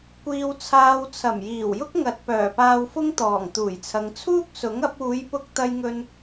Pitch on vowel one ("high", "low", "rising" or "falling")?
low